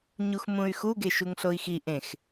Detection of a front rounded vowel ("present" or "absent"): present